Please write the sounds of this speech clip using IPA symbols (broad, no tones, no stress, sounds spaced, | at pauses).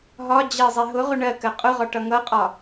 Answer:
ɦ ɒ d͡ʑ ɜ zˤ ɛ ɦ ʊ ʁ ʊ ɳ ɜ k ɜ qʼ ʊ ʁ ɒ ʈ ʌ ŋ ʌ qʼ ɒ